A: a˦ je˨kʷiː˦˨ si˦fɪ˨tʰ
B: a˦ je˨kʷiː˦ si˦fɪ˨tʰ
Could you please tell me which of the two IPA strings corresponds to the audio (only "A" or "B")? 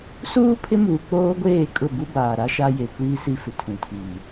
B